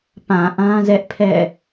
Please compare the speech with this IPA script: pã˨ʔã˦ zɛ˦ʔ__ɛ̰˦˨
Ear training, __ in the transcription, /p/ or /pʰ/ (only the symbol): pʰ